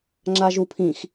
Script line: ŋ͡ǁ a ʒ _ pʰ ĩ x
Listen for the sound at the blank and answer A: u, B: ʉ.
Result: A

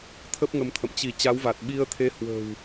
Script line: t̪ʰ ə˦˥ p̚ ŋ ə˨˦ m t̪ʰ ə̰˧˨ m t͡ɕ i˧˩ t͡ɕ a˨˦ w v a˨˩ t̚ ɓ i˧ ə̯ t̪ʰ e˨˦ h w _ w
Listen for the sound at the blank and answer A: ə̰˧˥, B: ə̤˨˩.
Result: B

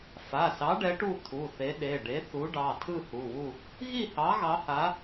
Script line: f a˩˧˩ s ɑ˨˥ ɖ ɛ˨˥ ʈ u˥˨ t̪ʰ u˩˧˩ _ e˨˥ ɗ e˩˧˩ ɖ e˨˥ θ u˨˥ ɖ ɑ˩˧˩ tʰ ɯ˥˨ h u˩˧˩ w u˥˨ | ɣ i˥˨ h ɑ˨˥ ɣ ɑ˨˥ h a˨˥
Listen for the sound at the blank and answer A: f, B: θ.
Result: B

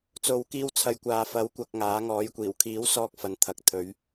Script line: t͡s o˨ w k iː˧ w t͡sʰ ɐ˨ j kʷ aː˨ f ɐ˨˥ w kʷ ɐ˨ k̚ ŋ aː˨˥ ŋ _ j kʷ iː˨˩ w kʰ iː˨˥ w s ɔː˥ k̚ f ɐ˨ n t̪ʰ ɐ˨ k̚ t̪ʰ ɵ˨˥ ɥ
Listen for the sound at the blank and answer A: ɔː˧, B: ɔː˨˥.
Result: B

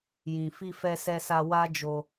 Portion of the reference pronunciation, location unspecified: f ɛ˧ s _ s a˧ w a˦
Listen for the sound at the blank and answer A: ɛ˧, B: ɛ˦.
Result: A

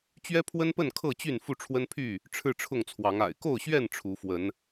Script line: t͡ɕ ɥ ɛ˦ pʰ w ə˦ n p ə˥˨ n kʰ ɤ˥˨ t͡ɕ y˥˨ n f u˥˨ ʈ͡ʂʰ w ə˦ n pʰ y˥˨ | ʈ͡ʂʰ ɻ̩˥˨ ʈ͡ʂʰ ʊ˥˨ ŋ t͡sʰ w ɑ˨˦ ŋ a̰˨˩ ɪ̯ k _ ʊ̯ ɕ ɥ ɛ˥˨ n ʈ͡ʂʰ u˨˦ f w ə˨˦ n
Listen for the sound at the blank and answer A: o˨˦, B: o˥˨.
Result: B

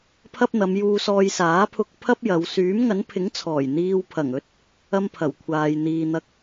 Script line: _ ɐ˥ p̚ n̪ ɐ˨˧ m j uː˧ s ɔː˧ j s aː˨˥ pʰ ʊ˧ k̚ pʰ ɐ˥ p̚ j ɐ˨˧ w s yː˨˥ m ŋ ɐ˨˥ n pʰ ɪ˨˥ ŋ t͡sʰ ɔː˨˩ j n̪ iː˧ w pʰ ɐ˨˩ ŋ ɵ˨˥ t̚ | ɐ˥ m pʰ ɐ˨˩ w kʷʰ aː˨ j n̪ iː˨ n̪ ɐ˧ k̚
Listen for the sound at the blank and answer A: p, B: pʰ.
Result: B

